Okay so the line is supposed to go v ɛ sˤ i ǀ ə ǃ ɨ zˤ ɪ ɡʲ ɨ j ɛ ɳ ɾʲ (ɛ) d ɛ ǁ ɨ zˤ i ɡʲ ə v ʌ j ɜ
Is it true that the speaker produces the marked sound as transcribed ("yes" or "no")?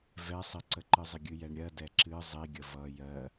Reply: no